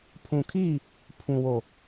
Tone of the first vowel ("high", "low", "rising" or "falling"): low